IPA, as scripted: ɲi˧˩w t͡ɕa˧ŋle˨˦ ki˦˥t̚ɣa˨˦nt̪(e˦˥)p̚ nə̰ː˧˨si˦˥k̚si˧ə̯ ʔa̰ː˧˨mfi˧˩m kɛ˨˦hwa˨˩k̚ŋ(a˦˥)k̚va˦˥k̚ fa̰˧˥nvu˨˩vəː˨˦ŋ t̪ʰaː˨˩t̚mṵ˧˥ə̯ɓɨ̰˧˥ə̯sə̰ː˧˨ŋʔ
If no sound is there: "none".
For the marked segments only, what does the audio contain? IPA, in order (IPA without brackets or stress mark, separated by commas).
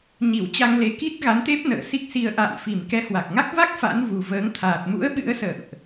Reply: e˦˥, a˦˥